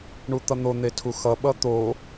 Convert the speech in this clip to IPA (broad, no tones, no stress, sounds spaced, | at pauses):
ɳ u t̪ ʌ n̪ o n̪ e tʰ u x ʌ ɓ ʌ t̪ o